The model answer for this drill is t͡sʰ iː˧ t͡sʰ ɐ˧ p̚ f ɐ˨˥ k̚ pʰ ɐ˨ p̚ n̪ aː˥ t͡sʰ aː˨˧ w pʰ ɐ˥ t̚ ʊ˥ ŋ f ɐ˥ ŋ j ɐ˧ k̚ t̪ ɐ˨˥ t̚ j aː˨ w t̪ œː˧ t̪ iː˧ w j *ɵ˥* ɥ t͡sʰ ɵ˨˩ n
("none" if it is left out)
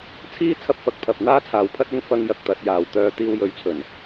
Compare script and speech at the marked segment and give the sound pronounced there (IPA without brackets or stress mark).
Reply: ɵ˨˥